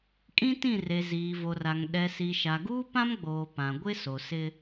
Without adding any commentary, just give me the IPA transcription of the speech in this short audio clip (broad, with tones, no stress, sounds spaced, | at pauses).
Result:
kʼ ĩ˦ t ĩ˦˨ r e˨ z iː˨ v o˨ r a˨ ŋ ɗ ɛ˨ s i˨ ʃ a˨ ɡ uː˦ p ã˦ m ɡ͡b oː˨ p ã˨ ɡʷ ɪ˦ s o˨ s ɪ˦